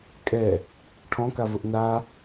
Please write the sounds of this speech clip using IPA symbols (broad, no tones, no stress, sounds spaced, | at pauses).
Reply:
kʼ ɛ | ʈʰ ɔ̃ k a v ʊ ʔ n a